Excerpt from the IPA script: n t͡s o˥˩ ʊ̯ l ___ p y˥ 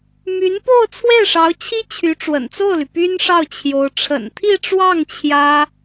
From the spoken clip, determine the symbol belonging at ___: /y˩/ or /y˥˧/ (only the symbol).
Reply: y˩